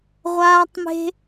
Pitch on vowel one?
high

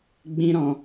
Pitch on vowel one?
high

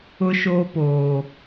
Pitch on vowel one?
high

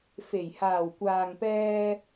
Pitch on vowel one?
low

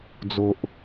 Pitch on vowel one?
low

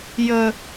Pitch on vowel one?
high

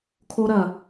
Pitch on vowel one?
high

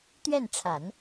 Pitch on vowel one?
falling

